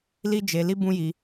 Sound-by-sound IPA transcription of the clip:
li˦d͡ʒe˧li˦ bũ˦ji˧

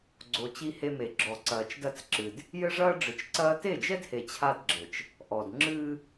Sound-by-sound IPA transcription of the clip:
ɡ͡ǀo˨ t͡ɕi˦he˦me˨ ɡ͡ǁɔ˨ǀɐː˨t͡ʃdɐ˦t͡s ǁɨ˨d | jɘ˦ʐɐː˦ ɖ͡ʐɨ˨t͡ʃǀɐː˦ te˦˨d͡ʒɛ˦dhe˨ t͡ɕʰa˦dɡ͡ǁɘ˨t͡ʃ | ʔɔ˨d ŋ͡ǁɨː˦

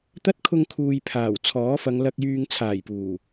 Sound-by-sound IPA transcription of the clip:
t̪ɐ˥t̚kʰʊ˧ŋkʰuː˨j pʰaː˨˩w t͡sʰɔː˨˥fɐ˨˧ŋlɐ˧k̚jyː˧ŋ t͡sʰaː˨˩jpuː˨˩

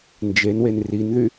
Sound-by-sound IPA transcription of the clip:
nd͡ʒenwen rinðy

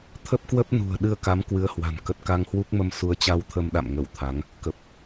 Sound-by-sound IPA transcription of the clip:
t̪ʰə˦˥p̚kwə˦˥p̚nṳ˨˩ə̯ ɗɨ˧ə̯ka˨˦m kwɨ˨˦ə̯hwa̤˨˩n kə˨˩t̚ka˧ŋhwu˦˥k̚mə˧m su˨˦ə̯t͡ɕa˧wt̪ʰə˧mɗa̰˧˨m ŋə˧˩w t̪ʰa˨˦ŋ | kə˨˩p̚

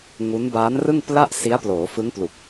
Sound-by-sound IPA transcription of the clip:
ŋu˦˥n baː˦˥n rɯ˥˩ŋpla˥˩ʔsi˦˥a̯ ploː˩˦fɯ˦˥ŋplu˨˩k̚

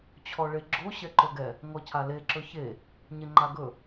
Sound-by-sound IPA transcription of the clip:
t͡ɕʰɔɭeɡ͡ǁo ɕɛǃɵɡɛ | ŋɔcʰale ǁɵçe | ɲeŋ͡ǃaɡɵ

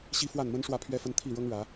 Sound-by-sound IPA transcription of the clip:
ɕi˦fwa˥˨nmə˦n ʂwä˥˨pʰɥɛ˦fə˦n t̪ʰi˥˨ɻɤ˦ŋɻä˨˦

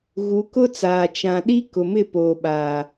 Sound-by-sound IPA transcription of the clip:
ɣu˨˦kʊ˦t͡saː˨ t͡ʃã˨ɗi˦ kʊ˨mɪ˦˨ poː˨ɓaː˨

